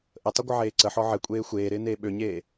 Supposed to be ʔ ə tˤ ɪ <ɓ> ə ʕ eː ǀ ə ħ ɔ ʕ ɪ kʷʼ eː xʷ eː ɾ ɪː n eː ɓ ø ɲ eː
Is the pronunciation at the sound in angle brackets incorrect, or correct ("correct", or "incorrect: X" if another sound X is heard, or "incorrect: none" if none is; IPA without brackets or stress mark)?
incorrect: ɡʷ